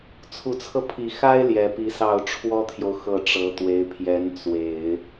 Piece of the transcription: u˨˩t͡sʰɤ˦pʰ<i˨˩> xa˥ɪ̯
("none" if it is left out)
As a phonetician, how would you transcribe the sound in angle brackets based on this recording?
i˨˩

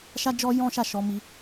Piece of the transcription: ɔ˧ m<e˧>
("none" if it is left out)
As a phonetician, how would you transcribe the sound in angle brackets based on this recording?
i˧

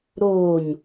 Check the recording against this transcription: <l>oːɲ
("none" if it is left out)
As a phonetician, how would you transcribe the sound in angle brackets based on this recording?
ɾ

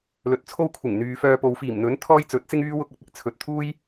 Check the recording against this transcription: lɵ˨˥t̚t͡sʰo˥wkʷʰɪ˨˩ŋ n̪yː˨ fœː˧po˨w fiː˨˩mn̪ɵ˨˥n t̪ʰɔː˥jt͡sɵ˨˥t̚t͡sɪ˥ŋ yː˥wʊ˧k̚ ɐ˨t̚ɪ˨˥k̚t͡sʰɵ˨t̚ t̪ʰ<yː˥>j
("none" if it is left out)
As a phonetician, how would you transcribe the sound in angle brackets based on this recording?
uː˥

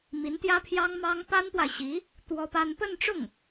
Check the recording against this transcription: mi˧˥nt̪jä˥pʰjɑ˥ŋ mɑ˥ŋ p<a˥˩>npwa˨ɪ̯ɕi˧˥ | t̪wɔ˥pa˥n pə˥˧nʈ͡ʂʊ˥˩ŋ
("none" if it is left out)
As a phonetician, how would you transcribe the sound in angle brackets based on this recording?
a˥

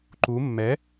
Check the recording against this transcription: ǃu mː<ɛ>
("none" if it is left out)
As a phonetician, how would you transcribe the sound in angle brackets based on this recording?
ɛ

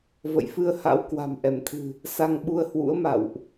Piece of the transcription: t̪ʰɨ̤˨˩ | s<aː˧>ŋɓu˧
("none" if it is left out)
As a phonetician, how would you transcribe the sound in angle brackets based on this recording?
a˧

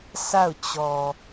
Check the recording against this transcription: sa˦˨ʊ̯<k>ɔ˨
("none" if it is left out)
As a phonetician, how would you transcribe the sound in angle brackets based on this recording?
t͡ɕ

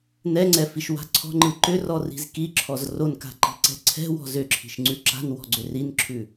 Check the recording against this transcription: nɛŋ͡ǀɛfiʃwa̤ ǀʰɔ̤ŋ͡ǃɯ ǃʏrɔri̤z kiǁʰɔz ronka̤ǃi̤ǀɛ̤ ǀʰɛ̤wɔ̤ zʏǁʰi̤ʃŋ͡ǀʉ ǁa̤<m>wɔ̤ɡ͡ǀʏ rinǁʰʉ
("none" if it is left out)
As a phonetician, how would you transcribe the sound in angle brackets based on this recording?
n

